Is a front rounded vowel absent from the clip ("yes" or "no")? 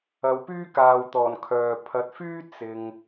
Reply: no